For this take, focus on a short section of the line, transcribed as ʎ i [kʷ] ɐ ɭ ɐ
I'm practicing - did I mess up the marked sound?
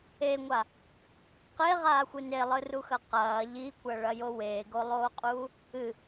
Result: no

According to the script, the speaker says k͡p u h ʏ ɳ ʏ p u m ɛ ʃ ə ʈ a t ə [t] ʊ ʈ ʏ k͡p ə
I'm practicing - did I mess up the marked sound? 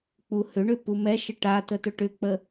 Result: no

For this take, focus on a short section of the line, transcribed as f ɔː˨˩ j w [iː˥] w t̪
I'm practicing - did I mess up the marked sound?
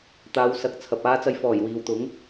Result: yes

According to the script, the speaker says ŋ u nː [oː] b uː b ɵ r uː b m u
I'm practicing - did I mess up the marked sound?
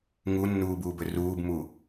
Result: yes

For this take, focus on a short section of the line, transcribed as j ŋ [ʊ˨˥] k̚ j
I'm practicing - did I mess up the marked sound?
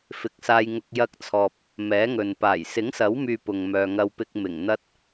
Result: yes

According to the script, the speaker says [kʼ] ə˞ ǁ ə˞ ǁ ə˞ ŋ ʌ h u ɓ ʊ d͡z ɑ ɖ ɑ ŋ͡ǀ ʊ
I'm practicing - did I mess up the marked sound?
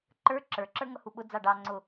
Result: yes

